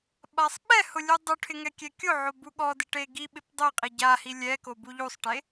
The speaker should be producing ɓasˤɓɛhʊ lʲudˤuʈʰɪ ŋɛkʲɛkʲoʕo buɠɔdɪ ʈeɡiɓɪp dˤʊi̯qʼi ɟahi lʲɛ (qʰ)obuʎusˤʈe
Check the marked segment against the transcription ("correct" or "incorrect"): incorrect